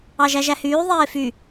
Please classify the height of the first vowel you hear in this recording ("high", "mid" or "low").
low